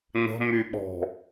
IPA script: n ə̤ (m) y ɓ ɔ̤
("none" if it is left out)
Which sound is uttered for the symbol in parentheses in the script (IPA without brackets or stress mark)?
m